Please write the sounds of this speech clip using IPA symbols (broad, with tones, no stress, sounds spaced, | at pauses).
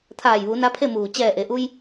t̪ʰ aː˧˩ j ʋ u˩˧ n a˧˥ pʰ e˥˨ m uː˧˩ t͡ɕ ɛː˧˩ ʔ e˩ ʔ u˧ j